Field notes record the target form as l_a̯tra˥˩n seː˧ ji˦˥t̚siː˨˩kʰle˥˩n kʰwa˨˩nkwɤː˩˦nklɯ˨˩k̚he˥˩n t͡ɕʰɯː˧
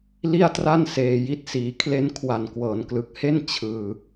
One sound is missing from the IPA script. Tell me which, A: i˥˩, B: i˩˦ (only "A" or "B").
A